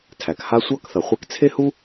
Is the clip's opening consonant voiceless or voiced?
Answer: voiceless